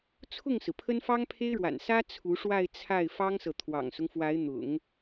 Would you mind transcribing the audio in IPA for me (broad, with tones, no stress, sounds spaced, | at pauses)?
t͡sʰ ʊ˥˩ ŋ s ɹ̩˩ pʰ ə˥ n f ɑ˥ ŋ pʰ e˥ ɪ̯ ɻ w a̰˨˩ n s ä˥ t͡sʰ u˧˥ ʂ w a˥˧ ɪ̯ t͡sʰ a˥˩ ɪ̯ f ɑ˥ ŋ s ɤ˨ t̪ʰ w ɑ̰˨˩ ŋ s ʊ˦ ŋ f w a˧˥ ɪ̯ n̪ ʊ̰˨˩˦ ŋ